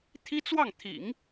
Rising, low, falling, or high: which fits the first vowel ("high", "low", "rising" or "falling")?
high